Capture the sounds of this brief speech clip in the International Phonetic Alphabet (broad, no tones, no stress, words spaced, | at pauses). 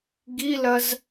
ɡilɐz